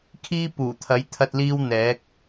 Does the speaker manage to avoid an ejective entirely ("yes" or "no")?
yes